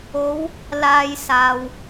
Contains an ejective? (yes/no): no